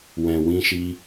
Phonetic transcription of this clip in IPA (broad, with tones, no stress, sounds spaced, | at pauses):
w ɛ̃˧ w ĩ˦ ʃ i˦